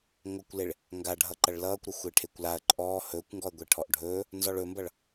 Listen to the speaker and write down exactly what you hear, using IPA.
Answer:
ŋʷɐkʷleɭ | ŋɡaɖʱʌǃɐɭ lʌːkʷɾɐ xʷeʈʰekʷlaɐ̯ ǃʼɔː hɵːkʷŋɡɔɐ̯ɡʷe ʈʰɔʔɖʱɵː | nzɔɭɵmbʌɭ

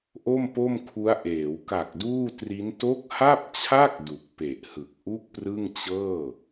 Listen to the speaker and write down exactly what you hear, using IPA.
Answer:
ʔo˥˩mpo˥˩mkʰu˦˥a̯ʔeː˩˦w ka˨˩k̚duː˥˩tri˦˥n to˦˥k̚ha˥˩p̚t͡ɕʰa˥˩k̚ du˨˩k̚pe˨˩ʔhɯ˨˩k̚ ʔu˥˩k̚prɯ˥˩ŋt͡ɕɤː˥˩

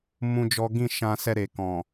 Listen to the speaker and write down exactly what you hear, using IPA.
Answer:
mũ˦d͡ʒɔ˦ ɡĩ˦˨ʃã˧sɛ˧ ɾe˨kɔ̃˨

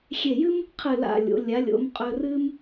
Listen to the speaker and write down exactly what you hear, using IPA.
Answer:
xʲe˧˩jɨ˥m | qʰɨ˧˩la̰˧˩lʲo̰˩˧ lʲa˩˧lʲo̰˩˧m qʼɵ˧rɨ˥m

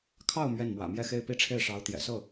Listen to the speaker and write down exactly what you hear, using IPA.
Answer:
kʰɑ˥˧ʊ̯ mɥɛ˥˩nmwä̰˨˩mjɛ˥˧ xe˥˧ɪ̯pi˥˧ʈ͡ʂʰe˥˩ɪ̯ʂɑ˧˥ʊ̯ t̪jɛ̰˨˩ sɤ˥˩

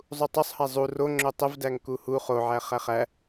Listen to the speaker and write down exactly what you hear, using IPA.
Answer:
zˤutˤosˤhæ zˤu ro ŋ͡ǁotˤəvdæŋ kuhu χoʕæ χæχæ

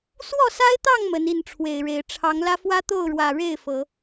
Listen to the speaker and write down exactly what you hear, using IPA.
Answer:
swɔ˥˨sa˦ɪ̯t̪ɑ˥˨ŋ mə˨˦ni˥˨nʈ͡ʂʰwe˨˩ɪ̯ɻe˨˦ɪ̯ ʈ͡ʂʰɑ˨˦ŋlä˦ fwä˦t̪o˥˨ʊ̯ɻwä˨˩ ɻe˥˨ɪ̯ fɤ˨˦

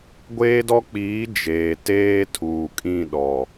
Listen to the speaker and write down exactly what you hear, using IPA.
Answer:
ɡʷeː˦dɔ˦k͡piː˨˦ d͡ʒeː˨teː˦ tʰuː˨kʼĩ˦˨ɗɔ˨

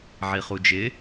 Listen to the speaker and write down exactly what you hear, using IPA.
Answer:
ʕiχud͡ʒɪ

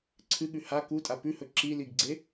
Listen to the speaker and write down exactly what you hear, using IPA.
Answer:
ǀʰɨɠʉ ha kutʼa pʉhɵ ǁiliɡɡ͡ǀe

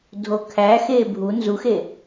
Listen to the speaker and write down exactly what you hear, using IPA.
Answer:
dʱokʰæxe bʱu nzuxe

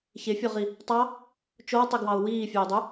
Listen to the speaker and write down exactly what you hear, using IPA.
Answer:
çefʲɔʁi | tˤɑ | t͡ʃowtˤeɡwɑʊ̯ wiːfʲœɪ̯dˤy

